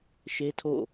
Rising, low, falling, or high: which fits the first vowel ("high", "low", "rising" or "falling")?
high